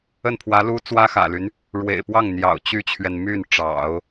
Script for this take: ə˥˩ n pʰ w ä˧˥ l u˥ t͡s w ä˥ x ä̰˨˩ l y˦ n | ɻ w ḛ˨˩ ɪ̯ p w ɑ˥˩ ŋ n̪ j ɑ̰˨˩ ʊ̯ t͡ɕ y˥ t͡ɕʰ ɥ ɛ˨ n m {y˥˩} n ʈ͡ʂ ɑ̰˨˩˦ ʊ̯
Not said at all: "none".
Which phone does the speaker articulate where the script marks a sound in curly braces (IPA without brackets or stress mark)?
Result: y˥˩